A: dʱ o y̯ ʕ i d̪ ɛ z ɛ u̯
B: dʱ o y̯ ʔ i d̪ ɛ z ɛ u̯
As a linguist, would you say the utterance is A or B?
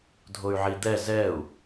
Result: A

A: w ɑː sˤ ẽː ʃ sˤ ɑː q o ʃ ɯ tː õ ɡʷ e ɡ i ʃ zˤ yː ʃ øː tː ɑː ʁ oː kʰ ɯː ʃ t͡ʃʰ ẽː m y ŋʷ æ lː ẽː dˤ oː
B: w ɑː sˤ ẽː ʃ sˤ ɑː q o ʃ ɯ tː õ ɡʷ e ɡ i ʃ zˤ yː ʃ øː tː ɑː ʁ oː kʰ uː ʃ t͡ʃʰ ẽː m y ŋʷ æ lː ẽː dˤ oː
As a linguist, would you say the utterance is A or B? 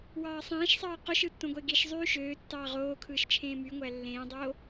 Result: A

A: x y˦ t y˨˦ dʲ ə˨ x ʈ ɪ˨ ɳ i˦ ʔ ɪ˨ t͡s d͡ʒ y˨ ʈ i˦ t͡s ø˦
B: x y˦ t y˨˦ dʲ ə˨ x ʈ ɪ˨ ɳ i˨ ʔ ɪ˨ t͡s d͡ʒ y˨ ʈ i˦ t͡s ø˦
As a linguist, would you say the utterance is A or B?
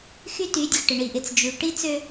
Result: B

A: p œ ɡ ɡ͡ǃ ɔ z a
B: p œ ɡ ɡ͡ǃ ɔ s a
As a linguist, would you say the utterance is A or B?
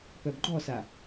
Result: B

